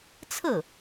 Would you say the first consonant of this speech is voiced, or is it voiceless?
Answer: voiceless